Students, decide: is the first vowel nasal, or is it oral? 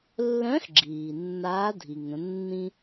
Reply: nasal